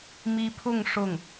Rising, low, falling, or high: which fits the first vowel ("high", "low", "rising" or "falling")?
high